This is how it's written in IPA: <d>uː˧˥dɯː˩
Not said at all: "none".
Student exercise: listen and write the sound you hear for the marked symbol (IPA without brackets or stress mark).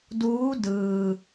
d